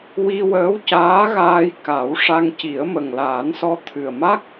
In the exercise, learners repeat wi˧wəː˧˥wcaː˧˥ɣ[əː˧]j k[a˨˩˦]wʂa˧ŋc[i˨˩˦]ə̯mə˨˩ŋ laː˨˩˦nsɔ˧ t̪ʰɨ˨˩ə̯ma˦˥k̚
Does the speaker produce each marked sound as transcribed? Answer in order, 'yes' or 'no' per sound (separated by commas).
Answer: no, yes, yes